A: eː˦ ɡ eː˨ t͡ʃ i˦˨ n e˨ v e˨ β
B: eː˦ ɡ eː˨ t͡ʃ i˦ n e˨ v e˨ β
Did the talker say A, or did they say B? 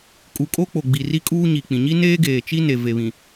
B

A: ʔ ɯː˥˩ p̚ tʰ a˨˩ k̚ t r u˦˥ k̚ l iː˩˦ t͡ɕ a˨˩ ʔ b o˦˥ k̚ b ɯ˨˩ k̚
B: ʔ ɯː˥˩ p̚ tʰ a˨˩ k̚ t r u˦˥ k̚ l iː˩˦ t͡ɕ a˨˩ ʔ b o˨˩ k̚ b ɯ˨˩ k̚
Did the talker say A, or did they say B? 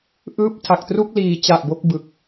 A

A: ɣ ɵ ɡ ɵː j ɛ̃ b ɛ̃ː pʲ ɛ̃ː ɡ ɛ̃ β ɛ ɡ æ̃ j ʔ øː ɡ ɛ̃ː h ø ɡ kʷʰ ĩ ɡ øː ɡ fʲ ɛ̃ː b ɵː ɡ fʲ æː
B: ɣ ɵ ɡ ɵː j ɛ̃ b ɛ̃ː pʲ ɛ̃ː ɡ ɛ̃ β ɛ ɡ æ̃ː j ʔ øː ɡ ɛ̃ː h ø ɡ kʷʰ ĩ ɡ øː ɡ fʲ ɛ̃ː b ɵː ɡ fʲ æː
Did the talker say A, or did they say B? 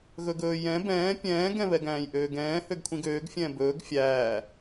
B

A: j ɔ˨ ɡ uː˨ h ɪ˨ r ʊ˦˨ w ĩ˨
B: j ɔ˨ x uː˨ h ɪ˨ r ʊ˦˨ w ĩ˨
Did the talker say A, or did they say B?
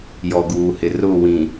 A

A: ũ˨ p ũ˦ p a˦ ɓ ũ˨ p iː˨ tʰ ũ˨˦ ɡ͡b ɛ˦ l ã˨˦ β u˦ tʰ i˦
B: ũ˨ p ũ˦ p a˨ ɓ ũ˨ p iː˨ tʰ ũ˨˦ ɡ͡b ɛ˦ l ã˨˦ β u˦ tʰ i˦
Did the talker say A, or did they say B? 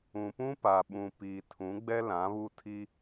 B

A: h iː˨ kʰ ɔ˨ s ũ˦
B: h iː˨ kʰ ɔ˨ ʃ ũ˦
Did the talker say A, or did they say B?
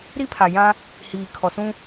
A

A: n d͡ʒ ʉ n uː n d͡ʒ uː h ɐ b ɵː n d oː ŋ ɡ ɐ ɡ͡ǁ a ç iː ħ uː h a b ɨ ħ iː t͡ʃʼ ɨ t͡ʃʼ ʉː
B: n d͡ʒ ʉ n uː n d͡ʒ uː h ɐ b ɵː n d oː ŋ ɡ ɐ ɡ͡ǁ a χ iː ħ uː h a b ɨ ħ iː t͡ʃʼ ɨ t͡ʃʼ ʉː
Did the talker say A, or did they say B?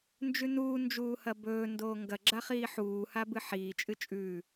B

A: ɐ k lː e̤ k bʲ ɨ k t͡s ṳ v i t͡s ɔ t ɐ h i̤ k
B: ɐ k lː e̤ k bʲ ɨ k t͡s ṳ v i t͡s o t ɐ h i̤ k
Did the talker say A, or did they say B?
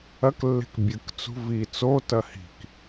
B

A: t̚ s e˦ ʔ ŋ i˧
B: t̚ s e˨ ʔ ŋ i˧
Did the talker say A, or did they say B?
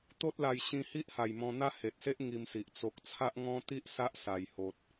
A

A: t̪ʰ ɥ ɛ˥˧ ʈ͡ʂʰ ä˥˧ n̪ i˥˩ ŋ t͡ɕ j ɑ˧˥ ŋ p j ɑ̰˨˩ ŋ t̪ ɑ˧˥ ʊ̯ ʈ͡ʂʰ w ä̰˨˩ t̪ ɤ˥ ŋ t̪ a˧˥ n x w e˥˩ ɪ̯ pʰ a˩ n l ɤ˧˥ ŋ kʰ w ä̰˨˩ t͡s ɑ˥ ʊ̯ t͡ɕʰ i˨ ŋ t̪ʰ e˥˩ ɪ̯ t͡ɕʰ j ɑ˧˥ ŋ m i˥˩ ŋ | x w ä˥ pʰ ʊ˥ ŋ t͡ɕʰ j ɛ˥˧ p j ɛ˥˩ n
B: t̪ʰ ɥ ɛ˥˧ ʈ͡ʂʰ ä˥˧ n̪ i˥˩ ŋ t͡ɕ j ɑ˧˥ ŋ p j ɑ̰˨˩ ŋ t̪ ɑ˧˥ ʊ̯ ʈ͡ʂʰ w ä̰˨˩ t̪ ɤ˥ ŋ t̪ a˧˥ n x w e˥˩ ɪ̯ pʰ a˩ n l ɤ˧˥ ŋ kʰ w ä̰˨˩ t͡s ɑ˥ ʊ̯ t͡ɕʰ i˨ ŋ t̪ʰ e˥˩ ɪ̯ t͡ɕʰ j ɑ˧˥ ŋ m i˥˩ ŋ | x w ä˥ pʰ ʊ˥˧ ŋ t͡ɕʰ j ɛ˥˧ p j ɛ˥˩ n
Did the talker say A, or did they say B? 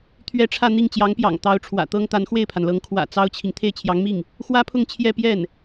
B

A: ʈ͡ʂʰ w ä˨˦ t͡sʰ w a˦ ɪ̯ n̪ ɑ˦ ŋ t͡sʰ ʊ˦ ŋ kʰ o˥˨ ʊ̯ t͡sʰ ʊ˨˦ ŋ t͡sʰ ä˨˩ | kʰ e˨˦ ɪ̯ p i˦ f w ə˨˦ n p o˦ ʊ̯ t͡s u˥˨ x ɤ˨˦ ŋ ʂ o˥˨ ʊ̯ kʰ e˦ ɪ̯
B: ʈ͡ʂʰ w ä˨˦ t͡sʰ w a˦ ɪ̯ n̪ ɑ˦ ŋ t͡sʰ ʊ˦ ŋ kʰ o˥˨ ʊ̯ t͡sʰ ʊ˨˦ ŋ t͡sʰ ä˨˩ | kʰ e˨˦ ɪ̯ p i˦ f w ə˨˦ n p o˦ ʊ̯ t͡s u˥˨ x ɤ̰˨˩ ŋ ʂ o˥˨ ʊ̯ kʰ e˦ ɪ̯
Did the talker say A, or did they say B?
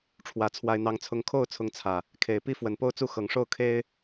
A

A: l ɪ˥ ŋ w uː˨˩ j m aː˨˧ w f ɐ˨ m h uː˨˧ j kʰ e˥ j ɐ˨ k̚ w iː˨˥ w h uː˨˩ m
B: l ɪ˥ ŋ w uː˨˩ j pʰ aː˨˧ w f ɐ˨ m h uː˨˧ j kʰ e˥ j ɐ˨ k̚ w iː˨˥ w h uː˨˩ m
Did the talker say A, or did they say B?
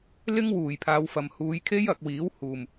B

